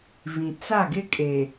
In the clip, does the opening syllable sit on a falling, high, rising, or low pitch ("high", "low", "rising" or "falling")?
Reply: low